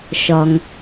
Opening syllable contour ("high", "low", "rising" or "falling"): low